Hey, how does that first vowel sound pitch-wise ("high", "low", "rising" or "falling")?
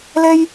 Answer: high